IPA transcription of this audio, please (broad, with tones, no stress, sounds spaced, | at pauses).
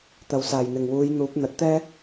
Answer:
t̪ ɐ˨˩ w s aː˨˩ j n̪ ɪ˨˩ ŋ w uː˨˧ j n̪ uː˨˥ p̚ n̪ ɐ˨˥ t̚ t̪ ɛː˥